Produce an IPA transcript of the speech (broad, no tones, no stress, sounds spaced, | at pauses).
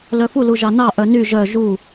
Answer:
l œ f u l u ʒ ɑ n ɑ ʔ œ n y ʒ œ ʒ u